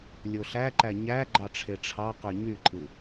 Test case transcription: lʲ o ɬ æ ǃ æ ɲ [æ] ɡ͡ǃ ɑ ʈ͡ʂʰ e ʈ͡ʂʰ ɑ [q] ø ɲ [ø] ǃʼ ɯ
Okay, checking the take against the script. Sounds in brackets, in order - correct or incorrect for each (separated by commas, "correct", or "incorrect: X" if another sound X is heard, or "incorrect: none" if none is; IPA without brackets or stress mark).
correct, correct, incorrect: y